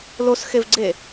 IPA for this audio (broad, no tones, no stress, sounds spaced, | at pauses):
l o s x e v ɡ͡ǀ e